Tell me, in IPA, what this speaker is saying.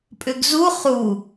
pʼ ʏ ɡ z u χ u

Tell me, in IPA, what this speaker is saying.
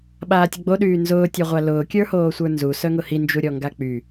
ɓ aː tʲ ə ɡ͡b o ɗ yː n z ʊː tʲ ɔ ʁʷ a l ʊː kʲ ə˞ h oː sʷ ə˞ n z u s œ ŋ ʊ h i n d͡ʒ u ɾʲ ɔ ŋ ɡ a k͡p y

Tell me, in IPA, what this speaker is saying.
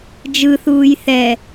d͡ʒ ɯ θ uː j θ ɛ

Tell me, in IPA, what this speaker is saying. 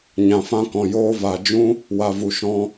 ɲ ã˨ f ã˦ k ɔ̃˨ j oː˧ v a˨ d͡ʒ ũ˦ | w a˨ v u˨ ʃ ɔ̃˧

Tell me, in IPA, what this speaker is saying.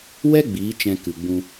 w ɛ˦ ɡ͡b iː˨˦ t͡ʃ ɛ̃˧ k ɨ˨ ɡ͡b ũ˧

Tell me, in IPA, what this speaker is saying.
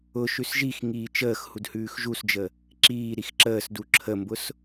ʊ ʃ ʉ s ʒ i x ŋ iː t͡ʃ əː x h u d h ʉː x ʒ u s d͡ʒ ə | ǁ iː ɾ i x ǁ əː s d u ǁʰ ə m b ʊ s

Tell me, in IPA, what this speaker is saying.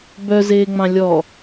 b œ z eː ŋ͡m ɑ̃ lʲ ɔ

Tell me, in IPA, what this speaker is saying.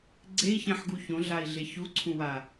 ɡ͡ǀ e i̯ ç ɛ̃ ħ ɡ u ç õ ɮ a i̯ ɮ e ç u ǀʰ ũ w a

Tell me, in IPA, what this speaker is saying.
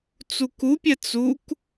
t͡s u k u pʲ ɛ t͡s u k

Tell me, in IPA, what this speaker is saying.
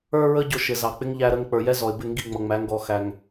ə˞˧ ɹ ə˧ ɟ ʊ˨ ʃ ɪ˨ z ɑ˨ k͡p ɪ˦ ŋ ʎ æ˧ ɾ ə˧ ŋ k͡p ə˞˨ j ɛ˦ z ɔ˨ ɪ̯ b ɪ˦˨ ŋ ɡ i˦˨ ŋ͡m ʌ˨ ŋ͡m æ˨˦ ŋ ɡ ɔ˧ x æ˧ ŋ

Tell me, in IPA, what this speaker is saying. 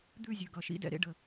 d̪ ʉ˥˧ zʲ ʉ˩˧˩ ɡ ʌ˩˧˩ ʃ ḭ˥˧ d ɛ̰˥˧ ɾ ḛ˥˧ ɖ ə˩˧˩

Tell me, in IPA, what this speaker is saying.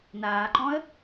n aː ǃ ɔ̃ ə̯

